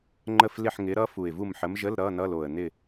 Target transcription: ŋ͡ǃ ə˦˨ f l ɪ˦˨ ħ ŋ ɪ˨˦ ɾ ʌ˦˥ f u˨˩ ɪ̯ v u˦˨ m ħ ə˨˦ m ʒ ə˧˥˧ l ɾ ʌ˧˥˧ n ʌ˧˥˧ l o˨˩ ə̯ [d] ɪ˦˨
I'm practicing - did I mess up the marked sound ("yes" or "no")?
yes